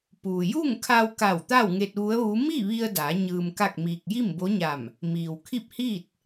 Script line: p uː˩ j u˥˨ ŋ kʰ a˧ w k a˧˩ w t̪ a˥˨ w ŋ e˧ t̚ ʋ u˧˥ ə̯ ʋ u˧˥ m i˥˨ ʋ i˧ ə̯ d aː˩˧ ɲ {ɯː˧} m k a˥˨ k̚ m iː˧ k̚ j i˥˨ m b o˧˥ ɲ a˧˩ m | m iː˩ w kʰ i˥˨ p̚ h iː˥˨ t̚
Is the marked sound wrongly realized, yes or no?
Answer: no